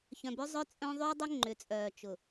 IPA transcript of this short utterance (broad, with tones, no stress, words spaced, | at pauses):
çœ̃˨bʏ˦zˤœ˦ t͡sʼœ̃˦ ðˤø˦dˤʏ˦ ŋ͡ǃʏ˨t͡sʼœː˨t͡ʃʊ˨